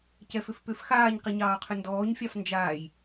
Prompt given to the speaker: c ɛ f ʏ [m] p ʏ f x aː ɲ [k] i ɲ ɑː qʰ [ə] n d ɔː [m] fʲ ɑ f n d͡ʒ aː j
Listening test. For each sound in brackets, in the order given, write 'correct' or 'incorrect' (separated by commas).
incorrect, incorrect, incorrect, incorrect